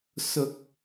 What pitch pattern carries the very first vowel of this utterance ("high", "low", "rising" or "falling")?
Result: high